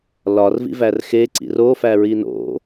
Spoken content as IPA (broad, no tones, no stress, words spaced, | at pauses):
lɒrvḭvær xeǀḭr ofæɹi no̰